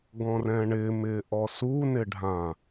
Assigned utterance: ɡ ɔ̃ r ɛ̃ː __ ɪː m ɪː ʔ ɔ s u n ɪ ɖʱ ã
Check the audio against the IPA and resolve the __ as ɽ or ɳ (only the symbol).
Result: ɳ